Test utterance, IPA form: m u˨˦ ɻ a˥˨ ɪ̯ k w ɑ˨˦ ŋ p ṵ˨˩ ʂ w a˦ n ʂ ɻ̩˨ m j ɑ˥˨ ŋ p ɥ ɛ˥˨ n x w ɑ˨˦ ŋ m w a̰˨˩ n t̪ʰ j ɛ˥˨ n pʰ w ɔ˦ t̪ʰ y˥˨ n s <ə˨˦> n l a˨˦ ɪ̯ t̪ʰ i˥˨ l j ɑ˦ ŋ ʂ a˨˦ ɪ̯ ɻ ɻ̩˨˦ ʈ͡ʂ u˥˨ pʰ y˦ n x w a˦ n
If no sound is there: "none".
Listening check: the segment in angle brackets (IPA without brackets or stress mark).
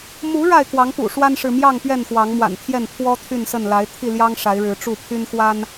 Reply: ə˥˨